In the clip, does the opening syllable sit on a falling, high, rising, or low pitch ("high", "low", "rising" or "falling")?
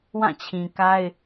falling